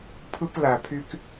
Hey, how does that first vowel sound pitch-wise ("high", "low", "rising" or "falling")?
high